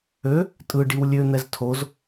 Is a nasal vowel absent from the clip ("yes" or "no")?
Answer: yes